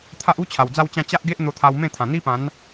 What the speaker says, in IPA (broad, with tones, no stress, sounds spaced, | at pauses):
t̪ʰ a˦ ʔ u˦ t͡ɕʰ a˨˩ w d͡z a˥˧ w t͡ɕ ã˥˧ t͡ɕ a˦ ʔ ɡ e˦ ʔ n̪ o˧ t̪ʰ a˧ w m ẽ˥˧ t̪ʰ ã˨˩ n̪ i˦ p ã˨˦ n